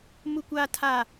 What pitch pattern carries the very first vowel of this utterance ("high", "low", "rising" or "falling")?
high